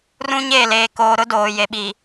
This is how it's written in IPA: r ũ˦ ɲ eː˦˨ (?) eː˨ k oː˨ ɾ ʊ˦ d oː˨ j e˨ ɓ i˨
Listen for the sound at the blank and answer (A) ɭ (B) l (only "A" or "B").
B